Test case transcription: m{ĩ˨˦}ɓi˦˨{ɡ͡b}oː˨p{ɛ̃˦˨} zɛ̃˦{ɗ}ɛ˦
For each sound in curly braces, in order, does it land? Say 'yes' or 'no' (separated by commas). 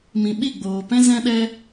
no, yes, no, yes